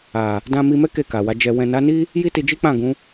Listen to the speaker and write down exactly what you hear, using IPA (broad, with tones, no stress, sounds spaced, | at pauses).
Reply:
a˨ | d ã˧ m i˧ m ɛ˦ k e˦˨ k a˨ w a˨˦ d͡ʒ ɛ˧ w ɛ̃˨ n a˨˦ n i˦ | j i˦ t i˧ d͡ʒ i˦ k͡p ã˦˨ ɡ ũ˨˦